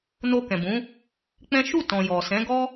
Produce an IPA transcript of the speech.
no˧kɛ̃˨bũ˨˦ | k͡pɛ̃˦ ʃu˦˨tɔ̃˨ jɔ˨sɛ̃˨˦ɡɔ˦

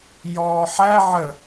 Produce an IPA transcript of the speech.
jɔːħæ ʕə

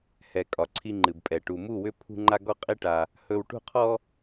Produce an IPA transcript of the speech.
hɛ˨ kʼɒ˨ǀʰi˧ŋ͡ǃɨ˨bpʼɛ˨ ʈu˨mu˦˨wʏ˦ pʰṳ˦ŋ͡ǃa˦ ɡɔ˦qʼi˦ʈa˧ | hɵ˧wʈṳ˦qʰɔ˦

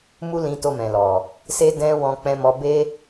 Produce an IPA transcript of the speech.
mu˦ lĩ˧to˧mɛ̃˨lɔ˨ | se˦dɛ̃˦ wɔ̃˧k͡pɛ̃˧mɔ˧be˦

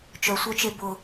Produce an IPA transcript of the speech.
t͡ʃœsʷœt͡ʃe bʊ

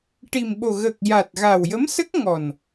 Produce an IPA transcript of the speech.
ʈi˨˩mɓo˨˩ɣəː˨˩k̚ ja˨˩t̚ɣa˨˩wjə˧˥msə˦˥k̚ ŋɔ˨˩n

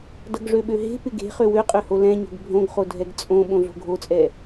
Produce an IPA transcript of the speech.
dʌɡʐøɓøɦe̤ pɪɡe̤ χøwøqʼøho lɛ̃ɲo̤ɡ bʱõɡχodʱɛɡ t͡sʼõ ɓõɮo̤ɡʱot͡sʼɛ

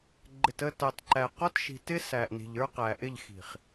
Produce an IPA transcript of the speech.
ɡ͡ǃɪ˨tə˦˨tɑ˨tǃæ˨ qɔ˦tʃi̤˨tɪ˦ sæ˨ʔni̤˨ʎ ə˞˦qæ˨ ʔɪ˦˨ʎxi̤˨χ

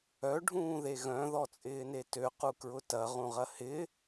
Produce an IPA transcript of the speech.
œ ɖʱũːðeɣœ̃ ðɔt͡sʼɪːnetø qukɹʊtɐ ʁũʁɐhɪ

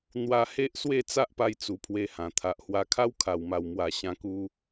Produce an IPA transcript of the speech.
n̪wa˧ he˦ʔswe˥˧ t͡sa˦ʔpa˧jt͡su˨˩ pʰwe˧hã˨˩ t̪ʰa˨ʔhwa˧kʰa˦w kʰa˨˩wma˨˩wmwa˨˩ ɕã˦ku˦

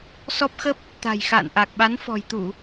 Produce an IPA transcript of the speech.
sɔ˦˥p̚xə˦˥p̚ | t̪a̤˨˩jxa̰ː˧˨nʔa˨˩k̚ ɓa˨˦nfɔ̤˨˩jt̪u˧˩˨

